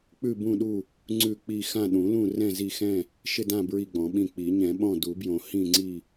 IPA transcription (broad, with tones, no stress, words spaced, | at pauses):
k͡pʉ˦˨bũ˦˨ɗu˦˨ | ŋ͡ǀʉ˦˨ k͡pi˦˨ xã˦˨ɗũ˨˩˦lũ˦˨ rɛ̃˦˨zi˦˨xɛ̃˦˨ | ʃɪ˦˨dã˦˨ bɹi˦˨ɡ͡bɔ̃˨˩˦ɓĩ˦˨ k͡pi˨˩˦ɲɛ̃˨˩˦ɓɔ̃˦˨ du˨˩˦bjõ˨˩˦ hĩ˦˨ŋ͡ǀi˦˨